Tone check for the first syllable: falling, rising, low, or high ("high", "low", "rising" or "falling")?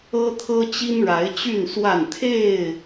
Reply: high